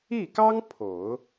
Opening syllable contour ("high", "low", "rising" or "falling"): falling